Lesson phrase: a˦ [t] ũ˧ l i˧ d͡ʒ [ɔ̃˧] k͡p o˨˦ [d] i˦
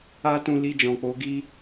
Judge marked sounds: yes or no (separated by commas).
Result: yes, no, no